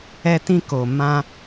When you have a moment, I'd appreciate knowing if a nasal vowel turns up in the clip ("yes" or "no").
yes